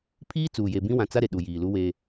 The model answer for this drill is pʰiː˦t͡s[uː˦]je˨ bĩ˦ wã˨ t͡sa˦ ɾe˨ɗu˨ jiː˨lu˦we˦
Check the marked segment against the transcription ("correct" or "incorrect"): incorrect